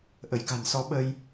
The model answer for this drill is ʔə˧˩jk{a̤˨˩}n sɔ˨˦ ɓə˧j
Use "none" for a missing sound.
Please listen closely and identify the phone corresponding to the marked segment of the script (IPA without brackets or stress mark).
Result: a̤˨˩